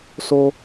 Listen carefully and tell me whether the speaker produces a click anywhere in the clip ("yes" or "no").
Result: no